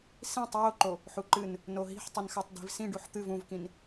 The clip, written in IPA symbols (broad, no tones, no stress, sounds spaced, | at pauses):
s ĩ tˤ j o ǃ o | ħ u ǃ ɨ n | n o ɦ i̤ ħ tˤ ɨ n x a tˤ d i̤ v s ĩ ɖ u ħ t̪ ɨ v ũ v k ĩ n